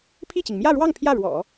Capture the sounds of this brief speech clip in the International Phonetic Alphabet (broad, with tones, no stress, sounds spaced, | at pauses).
pʰ i˥˩ t͡ɕ i˩ ŋ m j ä˥˧ ɻ w ɑ˥˧ ŋ pʰ j ä˥˩ ɻ w ɔ̰˨˩˦